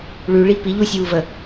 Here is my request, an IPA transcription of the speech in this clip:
ɭ ʉ ɭ i p i ʎ u sʲ w u v ə

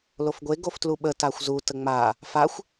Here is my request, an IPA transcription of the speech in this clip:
l o f ɡʷ e ɡ o f t l u ɓ ə t a xʷ z u t ə ŋ͡m a | f a xʷ

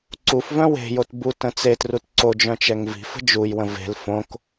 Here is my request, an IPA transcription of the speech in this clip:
ǀ u f v œ̃ w e̤ j o t b u t ə̃ t͡s e t r u t ǀ o d͡ʒ œ̃ t͡ʃ ɛ ŋ v i̤ f ə̤ d͡ʒ u j w ə̃ v e̤ l f õ k

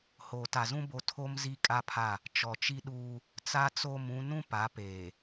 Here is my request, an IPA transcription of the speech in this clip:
h oː˨ t a˨ z ũ˦ b o˦ tʰ o˦ m z i˦ kʼ a˦ pʰ a˦˨ | t͡ʃ ɔ˨ t͡ʃ i˦ ɗ uː˦ | t͡s a˦ t͡s o˦˨ m ũ˦ n ũ˦ p a˨˦ p eː˨

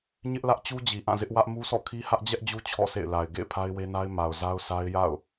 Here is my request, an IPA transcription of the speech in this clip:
ɲ ɪ˦ ʔ l ä˦ ʔ t͡ɕ u˦ d͡ʑ i˨ ʔ ã˦˨ z ɪ˦ ʔ w ä˦ ʔ m u˦ s ɔ̰˦˨ kʰ i˦ h ä˦ ʔ d͡ʑ ɛ˦ ʔ d͡ʑ u˦ t͡ɕʰ ɔ̰˦˨ s ḛ˦˨ ɪ̯ l a˨ ɪ̯ ɡ ḛ˦˨ ɪ̯ pʰ a˦ ɪ̯ w e˦ n a˦ ɪ̯ m a˨ ʊ̯ z a˦ ʊ̯ s a˦ ɪ̯ j a̰˦˨ ʊ̯

